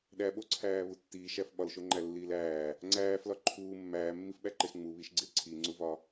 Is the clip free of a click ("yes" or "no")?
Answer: no